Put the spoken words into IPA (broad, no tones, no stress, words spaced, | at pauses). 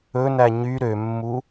ɵnæ ɲy ɾømːu